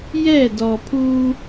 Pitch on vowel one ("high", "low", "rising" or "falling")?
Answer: falling